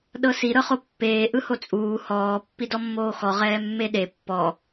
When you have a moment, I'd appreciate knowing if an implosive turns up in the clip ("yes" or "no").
yes